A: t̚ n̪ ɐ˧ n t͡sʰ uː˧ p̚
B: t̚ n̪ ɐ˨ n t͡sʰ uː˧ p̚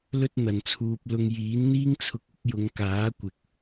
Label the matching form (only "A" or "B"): B